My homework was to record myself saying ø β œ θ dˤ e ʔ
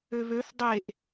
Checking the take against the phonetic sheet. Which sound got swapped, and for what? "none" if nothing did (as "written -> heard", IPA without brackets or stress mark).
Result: œ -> ø